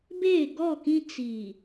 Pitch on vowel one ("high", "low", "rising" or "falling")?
falling